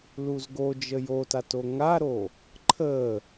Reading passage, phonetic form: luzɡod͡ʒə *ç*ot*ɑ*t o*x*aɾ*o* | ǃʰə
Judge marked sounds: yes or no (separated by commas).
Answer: no, no, no, yes